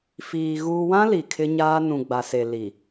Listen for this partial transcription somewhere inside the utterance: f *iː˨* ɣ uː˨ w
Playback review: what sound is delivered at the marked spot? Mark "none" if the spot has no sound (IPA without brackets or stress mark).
iː˨